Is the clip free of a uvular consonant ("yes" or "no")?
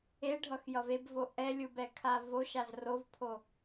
yes